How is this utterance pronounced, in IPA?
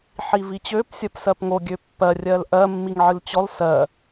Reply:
ħivit͡ɕøp sʲɜpsɜpŋo ɡʲøpːɜ rʲɜlʔɜ mːiŋʕɨlt͡ɕɔl sɜ

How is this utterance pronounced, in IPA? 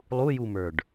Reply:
lˠujumə˞ɖ

